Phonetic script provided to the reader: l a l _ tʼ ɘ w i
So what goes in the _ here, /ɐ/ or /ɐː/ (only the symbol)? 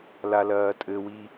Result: ɐː